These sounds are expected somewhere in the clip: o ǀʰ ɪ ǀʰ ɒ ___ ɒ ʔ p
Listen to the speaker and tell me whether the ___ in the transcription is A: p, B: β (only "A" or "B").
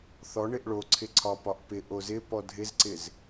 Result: A